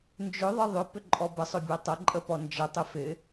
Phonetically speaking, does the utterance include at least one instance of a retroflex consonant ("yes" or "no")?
no